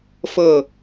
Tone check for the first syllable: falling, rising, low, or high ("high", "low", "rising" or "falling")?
falling